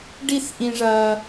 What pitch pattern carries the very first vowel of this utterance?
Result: falling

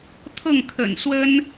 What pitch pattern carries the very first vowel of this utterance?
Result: falling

